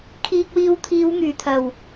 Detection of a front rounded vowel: present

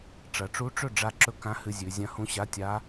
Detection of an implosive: absent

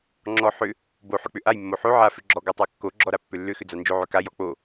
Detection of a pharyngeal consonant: present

